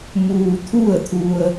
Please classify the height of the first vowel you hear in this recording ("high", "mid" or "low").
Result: high